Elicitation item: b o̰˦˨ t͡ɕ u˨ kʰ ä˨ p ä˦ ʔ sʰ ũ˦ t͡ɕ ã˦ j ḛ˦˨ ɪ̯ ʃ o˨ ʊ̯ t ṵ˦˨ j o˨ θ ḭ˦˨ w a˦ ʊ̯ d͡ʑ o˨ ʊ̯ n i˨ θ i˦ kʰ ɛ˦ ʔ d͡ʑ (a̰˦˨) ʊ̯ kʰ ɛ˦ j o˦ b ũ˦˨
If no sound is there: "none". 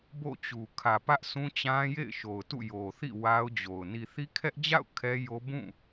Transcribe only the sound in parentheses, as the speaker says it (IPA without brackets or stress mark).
a̰˦˨